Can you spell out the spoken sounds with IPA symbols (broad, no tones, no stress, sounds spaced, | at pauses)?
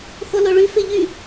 x o l o ɭ y f e ʎ y